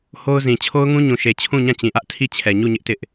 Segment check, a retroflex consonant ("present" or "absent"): absent